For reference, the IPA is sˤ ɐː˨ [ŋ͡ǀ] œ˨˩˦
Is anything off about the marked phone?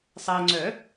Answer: no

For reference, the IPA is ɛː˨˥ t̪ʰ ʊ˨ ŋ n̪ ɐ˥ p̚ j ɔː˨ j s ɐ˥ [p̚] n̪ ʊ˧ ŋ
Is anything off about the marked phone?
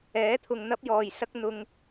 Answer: yes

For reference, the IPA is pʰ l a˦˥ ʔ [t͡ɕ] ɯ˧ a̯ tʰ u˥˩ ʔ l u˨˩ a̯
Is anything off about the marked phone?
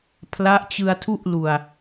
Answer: no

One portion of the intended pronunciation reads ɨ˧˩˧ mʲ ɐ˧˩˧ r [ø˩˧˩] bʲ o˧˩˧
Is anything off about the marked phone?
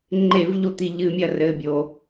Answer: yes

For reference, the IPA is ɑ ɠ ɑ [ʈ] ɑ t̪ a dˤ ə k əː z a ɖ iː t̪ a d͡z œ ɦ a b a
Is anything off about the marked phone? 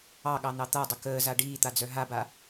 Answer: yes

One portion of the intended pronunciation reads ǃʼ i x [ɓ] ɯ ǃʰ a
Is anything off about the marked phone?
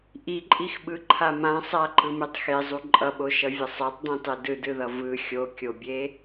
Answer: no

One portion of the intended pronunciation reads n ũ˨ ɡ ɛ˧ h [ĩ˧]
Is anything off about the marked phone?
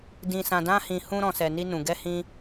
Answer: no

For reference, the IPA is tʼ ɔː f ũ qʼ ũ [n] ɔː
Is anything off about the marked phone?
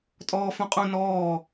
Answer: no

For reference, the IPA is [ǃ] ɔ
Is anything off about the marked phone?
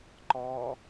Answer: no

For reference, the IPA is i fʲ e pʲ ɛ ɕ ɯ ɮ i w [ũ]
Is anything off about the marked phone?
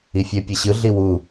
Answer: yes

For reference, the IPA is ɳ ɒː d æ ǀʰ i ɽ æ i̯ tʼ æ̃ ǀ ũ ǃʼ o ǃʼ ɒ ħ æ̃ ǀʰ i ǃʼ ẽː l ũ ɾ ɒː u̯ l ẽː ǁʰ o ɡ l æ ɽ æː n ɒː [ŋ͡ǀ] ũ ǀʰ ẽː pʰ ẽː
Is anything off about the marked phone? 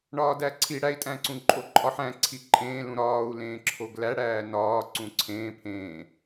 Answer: yes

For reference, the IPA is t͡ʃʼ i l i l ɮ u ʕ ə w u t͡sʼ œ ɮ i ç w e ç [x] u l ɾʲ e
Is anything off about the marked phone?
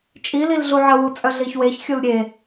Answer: yes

